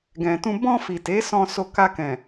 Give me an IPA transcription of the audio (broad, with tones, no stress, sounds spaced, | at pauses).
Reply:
ɡ ɛ̃˨ t ũ˧ b ɔ̃˧ f i˨ t e˨˦ s ɔ̃˧ s o˧ k a˧ k ɛ̃˨